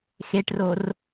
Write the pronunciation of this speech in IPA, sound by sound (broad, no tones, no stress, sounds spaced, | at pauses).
x e ʈ r o r